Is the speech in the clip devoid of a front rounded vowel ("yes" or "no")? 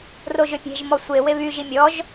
no